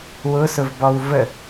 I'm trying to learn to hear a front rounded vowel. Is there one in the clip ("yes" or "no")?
no